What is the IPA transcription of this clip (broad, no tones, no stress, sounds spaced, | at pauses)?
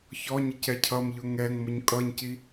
ç ɔ ɲ ɪ c ɛ cʰ ʌ m ʎ ʊ ŋ ɛ ŋ m ʊ ɲ kʼ ʌ ɲ c i